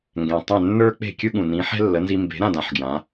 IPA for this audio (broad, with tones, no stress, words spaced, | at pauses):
ŋɡɛ̃˩tˤɛ̃˥˩ nːə˞˥ k͡pe̤˥˩kʲɯ˥ɠũ˩ nĩ˩˥ħɛ̤˥ lːə˩˥nzi˧ mbe̤˩˥ɾã˥˩dã˩˥ħ ɡjã˩˥